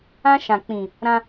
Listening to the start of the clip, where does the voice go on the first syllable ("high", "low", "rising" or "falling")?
high